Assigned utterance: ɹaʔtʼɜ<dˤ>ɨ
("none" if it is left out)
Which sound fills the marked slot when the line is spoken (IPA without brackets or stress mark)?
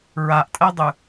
dˤ